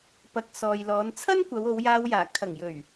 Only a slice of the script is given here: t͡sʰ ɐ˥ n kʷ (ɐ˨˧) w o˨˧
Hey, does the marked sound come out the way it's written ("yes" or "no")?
yes